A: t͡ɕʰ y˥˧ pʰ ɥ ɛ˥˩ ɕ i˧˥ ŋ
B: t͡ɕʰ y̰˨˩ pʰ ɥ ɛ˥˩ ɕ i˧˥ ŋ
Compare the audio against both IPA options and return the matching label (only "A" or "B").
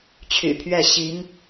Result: B